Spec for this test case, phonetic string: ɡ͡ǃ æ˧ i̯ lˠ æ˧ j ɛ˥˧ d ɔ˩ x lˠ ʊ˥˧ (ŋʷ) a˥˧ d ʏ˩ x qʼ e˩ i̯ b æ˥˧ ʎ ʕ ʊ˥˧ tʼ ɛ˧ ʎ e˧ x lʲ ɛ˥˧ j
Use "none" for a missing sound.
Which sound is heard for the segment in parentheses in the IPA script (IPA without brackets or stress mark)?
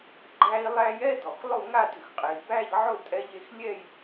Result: ŋ